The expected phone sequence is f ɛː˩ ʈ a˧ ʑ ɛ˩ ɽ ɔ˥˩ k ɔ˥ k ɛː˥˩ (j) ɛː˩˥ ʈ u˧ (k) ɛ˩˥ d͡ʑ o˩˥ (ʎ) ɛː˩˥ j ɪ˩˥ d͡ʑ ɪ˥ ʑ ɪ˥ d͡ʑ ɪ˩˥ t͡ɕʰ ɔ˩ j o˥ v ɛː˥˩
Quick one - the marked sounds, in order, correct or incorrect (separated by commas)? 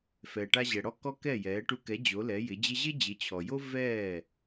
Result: correct, correct, incorrect